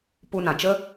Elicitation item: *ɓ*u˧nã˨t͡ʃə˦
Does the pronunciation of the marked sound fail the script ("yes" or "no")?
yes